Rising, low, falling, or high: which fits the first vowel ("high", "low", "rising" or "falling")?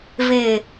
low